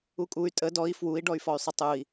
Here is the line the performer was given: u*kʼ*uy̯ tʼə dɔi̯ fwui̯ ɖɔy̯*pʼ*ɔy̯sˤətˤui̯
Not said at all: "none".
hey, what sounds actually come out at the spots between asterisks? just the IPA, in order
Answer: kʼ, f

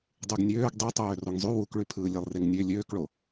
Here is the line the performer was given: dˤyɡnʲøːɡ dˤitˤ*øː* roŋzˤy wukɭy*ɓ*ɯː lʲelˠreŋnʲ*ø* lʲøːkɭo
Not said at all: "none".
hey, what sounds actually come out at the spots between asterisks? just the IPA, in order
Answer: øː, pʰ, ø

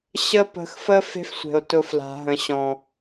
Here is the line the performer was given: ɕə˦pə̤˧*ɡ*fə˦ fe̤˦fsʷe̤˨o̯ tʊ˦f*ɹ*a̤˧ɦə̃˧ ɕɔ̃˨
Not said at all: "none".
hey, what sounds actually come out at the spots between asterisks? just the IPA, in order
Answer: x, l

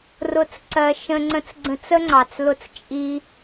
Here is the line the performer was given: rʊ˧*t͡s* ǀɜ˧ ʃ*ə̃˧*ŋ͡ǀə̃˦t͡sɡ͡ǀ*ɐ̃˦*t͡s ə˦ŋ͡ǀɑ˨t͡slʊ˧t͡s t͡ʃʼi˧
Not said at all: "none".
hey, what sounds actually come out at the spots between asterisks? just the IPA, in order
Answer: t͡s, ə̃˦, ə̃˦

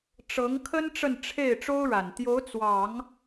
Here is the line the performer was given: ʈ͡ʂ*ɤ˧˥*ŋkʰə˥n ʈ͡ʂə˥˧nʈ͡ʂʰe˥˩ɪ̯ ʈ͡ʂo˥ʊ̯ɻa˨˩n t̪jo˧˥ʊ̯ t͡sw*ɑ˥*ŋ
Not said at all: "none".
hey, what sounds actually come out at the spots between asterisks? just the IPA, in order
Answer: ɤ˧˥, ɑ˨˩˦

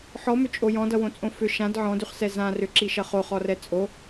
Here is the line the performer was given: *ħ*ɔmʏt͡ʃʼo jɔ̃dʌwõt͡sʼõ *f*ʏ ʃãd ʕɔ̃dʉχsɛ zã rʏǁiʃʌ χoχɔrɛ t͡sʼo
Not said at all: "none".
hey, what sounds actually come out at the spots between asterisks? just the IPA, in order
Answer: ħ, f

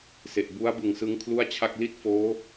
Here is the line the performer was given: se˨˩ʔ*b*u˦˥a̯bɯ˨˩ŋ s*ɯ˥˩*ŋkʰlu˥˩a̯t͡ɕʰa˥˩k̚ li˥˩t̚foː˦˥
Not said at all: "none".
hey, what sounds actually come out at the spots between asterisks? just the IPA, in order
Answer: b, ɯ˦˥

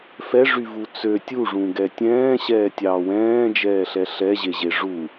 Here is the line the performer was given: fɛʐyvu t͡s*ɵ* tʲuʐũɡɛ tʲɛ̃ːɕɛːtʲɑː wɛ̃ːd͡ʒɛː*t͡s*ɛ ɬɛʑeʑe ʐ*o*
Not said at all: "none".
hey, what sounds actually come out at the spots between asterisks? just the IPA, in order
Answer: ø, ɬ, u

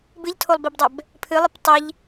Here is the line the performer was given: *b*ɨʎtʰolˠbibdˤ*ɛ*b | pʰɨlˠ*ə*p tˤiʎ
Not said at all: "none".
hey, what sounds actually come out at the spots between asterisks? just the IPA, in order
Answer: b, ɛ, ɨ

